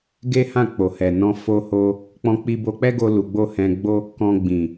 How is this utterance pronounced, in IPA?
ɡ e˦ h ã˦˨ k͡p o˨ h ɛ˨ n ɔ̃˧ f o˦ h o˦ | k͡p ɔ̃˧ k͡p i˧ b o˧ k͡p ɛ˦ ɡ o˦ l u˧ ɡ͡b o˦ h ɛ̃˧ ɡ͡b o˦ | k ɔ̃˧ ɡ͡b ĩ˨

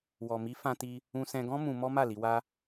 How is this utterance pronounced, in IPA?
w ɔ˨ m i˨˦ f ã˧ t i˧ | ũ˧ s ɛ̃˧ ɡ ɔ̃˦ m ũ˧ m ɔ˦ m a˦˨ l i˨˦ w a˦

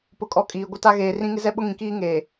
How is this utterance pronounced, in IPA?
p ʊ˨ kʼ ɔ˨ kʼ iː˨ ɡʷ ɪ˦ t a˦ ɣ eː˨ r ĩ˦ ŋ ɪ˦ z ɛ˦ ɓ ʊ˦ ŋ ĩ˨ k iː˦ ŋ eː˨

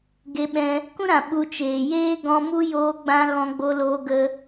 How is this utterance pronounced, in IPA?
ɡ e˧ ɓ ɛ̃˧ | k ũ˦ ɾ ã˨ ɓ u˧ t͡ʃ eː˨ j eː˦ ɡ ɔ̃˧ m u˦ j oː˧ ɡ͡b ã˧ ɣ ɔ̃˧ ɡ͡b o˧ l oː˧ ɡ ə˧

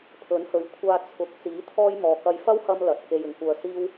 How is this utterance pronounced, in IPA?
pʰ ɵ˨˥ n h ɵ˨˥ ɥ kʷʰ aː˧ t͡sʰ ʊ˨˥ k̚ t͡s iː˨˥ t̪ʰ ɔː˥ j m ɔː˨˧ k ɐ˧ j f ɐ˥ w h ɐ˧ m l ɐ˨˥ t̚ k e˧ j ɪ˨˩ ŋ kʷ œː˨˧ s iː˥ w

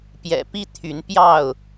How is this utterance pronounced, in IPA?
p j ɛ̰˨˩ p i˦ t̪ʰ y˨˦ n p j ɑ˥˨ ʊ̯

